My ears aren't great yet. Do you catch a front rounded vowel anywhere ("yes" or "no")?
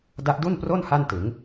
no